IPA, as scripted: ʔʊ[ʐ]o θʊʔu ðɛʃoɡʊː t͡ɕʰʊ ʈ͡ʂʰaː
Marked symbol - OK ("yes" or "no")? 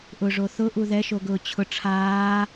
yes